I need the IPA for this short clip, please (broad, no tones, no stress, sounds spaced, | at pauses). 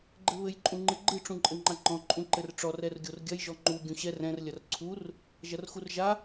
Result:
ɡ͡ǃ ɘ β ɘ j ǃʼ ũ ŋ͡ǃ ɨ ɡ͡ǃ ɨ ʈ͡ʂ ũ ǃʼ ɘ ŋ͡ǃ a ŋ͡ǃ ɔ̃ ǃʼ ũ ǃ ɘ r ʈ͡ʂ ɔ r ɛ r ɡʲ o r ɡʲ ɐ j ʒ ɔ ŋ͡ǃ u ɡʲ ũ ɕ ɛ r ɛ̃ r lʲ ɐ r ǀʰ u r | ʒ ɐ r x u r ʒ a